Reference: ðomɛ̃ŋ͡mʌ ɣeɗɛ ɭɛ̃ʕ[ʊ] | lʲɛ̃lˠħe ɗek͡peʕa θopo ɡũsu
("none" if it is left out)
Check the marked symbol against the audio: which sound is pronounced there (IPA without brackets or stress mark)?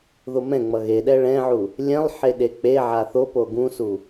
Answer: u